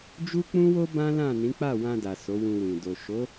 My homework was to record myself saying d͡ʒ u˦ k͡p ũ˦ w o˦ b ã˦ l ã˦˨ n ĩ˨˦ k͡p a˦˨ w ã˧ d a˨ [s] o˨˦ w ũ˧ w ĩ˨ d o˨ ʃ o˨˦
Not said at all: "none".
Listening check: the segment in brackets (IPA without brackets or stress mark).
s